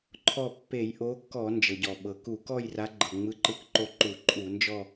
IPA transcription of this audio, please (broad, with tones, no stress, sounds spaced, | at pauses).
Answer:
ǃʰ ɔ˦˨ pː e˧˩˧ j ʔ o˨˦ kː ɔ˧˩˧ n d͡ʒ ɤ˩ ɟ ɔ˩ ɓ ɤ˩ k u˧˩˧ k ɔ˦˨ j r a˨˦ ɡ͡ǃ ɤ˩ ŋ͡m ɯ˨˦ ǃ ɯ˨˦ k ǃ o˦˨ ǃ u˧˩˧ ǃʼ u˧˩˧ n d͡ʒ ɔ˦˨